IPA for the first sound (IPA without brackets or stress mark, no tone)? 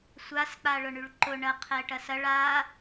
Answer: sʷ